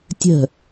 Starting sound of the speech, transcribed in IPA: tʲ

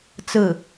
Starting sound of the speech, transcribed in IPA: t͡s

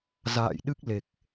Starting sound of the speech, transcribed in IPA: z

